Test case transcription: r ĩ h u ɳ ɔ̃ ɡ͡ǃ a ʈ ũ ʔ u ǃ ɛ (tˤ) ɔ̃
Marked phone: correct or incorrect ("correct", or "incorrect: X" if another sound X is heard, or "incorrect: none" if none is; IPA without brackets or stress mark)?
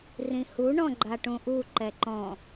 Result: incorrect: ǃ